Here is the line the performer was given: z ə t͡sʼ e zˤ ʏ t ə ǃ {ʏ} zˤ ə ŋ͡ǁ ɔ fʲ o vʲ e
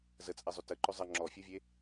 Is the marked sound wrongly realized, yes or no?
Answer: no